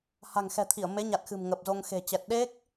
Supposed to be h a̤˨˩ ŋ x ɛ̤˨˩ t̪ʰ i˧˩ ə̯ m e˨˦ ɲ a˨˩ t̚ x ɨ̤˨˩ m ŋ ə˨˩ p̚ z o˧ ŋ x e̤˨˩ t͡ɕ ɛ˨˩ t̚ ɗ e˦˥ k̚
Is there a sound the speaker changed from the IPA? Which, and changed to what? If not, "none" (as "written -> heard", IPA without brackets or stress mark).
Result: none